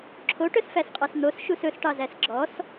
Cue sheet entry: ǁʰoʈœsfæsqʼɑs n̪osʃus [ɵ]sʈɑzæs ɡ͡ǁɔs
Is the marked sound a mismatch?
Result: no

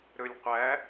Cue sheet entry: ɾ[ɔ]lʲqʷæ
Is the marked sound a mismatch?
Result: yes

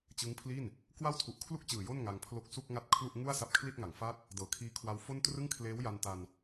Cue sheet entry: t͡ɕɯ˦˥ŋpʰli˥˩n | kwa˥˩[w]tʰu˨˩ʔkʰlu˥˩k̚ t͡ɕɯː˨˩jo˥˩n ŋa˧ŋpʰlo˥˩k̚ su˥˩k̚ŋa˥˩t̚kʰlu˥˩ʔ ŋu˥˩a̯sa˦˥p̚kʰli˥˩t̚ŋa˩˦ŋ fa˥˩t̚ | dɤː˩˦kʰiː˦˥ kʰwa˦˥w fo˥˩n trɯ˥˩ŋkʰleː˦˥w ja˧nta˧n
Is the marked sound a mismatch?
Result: no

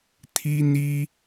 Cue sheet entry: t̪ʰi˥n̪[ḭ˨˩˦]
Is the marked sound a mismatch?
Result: yes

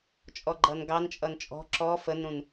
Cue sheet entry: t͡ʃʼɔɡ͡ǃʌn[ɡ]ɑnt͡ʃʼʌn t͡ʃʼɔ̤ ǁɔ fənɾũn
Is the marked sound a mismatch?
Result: no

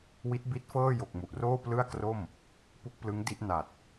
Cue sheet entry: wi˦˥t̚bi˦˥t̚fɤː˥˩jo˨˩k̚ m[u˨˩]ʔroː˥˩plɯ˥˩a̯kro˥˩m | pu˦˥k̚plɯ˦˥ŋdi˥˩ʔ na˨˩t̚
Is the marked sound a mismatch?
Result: no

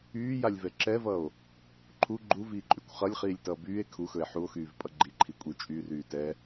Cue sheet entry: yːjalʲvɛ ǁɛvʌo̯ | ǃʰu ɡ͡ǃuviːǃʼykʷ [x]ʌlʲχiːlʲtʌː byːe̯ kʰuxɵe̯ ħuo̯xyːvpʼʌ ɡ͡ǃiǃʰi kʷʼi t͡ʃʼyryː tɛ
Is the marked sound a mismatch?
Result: yes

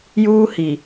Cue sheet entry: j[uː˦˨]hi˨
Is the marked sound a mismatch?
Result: yes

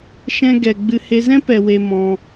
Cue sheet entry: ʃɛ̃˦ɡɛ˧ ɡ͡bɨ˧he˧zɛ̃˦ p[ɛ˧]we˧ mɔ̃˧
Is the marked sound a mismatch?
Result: no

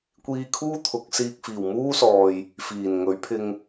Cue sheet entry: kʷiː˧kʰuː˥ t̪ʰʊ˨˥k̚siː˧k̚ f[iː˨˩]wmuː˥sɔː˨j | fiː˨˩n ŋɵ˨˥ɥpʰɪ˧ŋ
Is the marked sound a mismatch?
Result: no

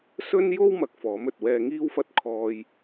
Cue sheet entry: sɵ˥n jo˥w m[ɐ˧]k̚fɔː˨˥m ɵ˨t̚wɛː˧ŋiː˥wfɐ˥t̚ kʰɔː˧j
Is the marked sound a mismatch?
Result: no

